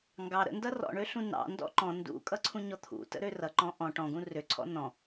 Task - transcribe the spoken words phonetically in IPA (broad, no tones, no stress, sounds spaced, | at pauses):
ŋ ɡ ɑ ɾ ə̰ n d ʌ r ɔ̰ ɳ ø ɬ ũ n ɑ̰ n d ɔ̰ ǃ ɔ̃ n d ṵ kʼ ʌ ǀʰ ũ ɲ ɔ t̪ʰ ṵ t ə̰ ɾ ø r ʌ ǃ ɔ̃ ʔ ɔ̃ ʈ ɔ̃ ɡ ũ r ø ǀʰ ɔ̰ n ɔ̃